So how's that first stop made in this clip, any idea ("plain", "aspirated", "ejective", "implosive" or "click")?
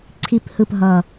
click